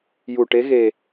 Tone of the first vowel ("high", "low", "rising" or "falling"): low